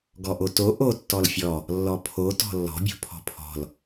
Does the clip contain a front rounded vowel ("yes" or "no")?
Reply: no